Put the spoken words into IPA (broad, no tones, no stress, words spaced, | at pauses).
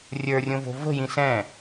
rʲə˞rʲõvo̤ və̤jĩ sɛ̃